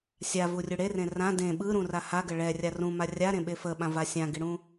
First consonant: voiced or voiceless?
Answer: voiceless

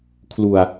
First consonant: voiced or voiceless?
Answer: voiceless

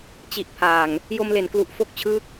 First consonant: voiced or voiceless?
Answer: voiceless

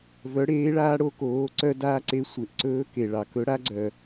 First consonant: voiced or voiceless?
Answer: voiced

